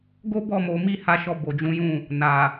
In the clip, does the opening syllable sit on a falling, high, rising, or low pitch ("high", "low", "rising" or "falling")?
high